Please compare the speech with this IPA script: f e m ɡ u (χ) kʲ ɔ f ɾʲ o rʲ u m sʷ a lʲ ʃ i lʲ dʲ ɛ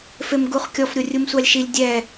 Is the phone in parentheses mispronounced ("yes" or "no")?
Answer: no